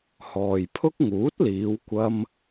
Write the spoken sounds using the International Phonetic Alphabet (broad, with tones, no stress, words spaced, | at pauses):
hɔː˨jpʰʊ˥k̚ ŋuː˨˥t̚liː˨˧w kʷɐ˥m